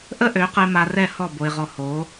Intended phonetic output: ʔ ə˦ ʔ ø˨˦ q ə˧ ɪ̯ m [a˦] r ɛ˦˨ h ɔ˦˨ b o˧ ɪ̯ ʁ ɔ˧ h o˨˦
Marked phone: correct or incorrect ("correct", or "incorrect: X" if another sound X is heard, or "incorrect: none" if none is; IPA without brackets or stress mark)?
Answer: incorrect: a˧